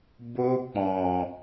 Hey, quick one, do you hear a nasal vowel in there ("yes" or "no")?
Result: yes